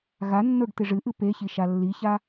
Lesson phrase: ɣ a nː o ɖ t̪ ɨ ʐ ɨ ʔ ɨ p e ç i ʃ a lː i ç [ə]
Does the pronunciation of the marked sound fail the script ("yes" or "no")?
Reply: yes